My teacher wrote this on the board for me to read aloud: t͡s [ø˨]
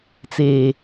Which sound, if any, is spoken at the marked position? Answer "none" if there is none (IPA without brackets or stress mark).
e˨